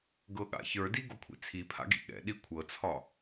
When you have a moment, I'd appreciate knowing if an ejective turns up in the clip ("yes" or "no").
no